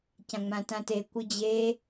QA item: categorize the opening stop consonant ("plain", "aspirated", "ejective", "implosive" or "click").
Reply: plain